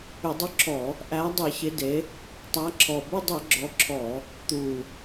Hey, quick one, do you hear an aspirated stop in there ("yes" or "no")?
yes